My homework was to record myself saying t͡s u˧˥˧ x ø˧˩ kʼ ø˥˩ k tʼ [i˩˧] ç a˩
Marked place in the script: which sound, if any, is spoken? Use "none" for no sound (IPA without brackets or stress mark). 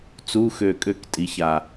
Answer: i˩˧